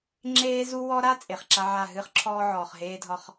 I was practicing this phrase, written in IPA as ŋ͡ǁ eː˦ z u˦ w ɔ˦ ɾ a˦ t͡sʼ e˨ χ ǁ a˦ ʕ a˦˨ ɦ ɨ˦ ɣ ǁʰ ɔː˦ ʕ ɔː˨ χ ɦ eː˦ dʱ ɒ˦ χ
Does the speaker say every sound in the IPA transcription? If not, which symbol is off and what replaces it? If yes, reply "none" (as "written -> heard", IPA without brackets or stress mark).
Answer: ɣ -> χ